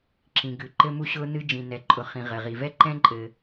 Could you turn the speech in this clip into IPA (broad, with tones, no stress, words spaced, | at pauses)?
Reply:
ǁĩ˩ ɡʉ˩ ǃɘ˥mu˥ɕʊː˥nɨ˥ d͡ʒĩ˩nɛ˩ ǃʼʊ˩χĩ˩ ʁɘ˩ʁi˩ vɛ˥ǃɛ̃˥ǃʼɘ˩